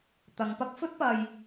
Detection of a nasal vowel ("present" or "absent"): absent